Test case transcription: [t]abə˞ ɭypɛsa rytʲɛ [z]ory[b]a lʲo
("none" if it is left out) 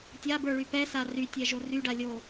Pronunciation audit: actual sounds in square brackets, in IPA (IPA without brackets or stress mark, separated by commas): tʲ, ʒ, ɖ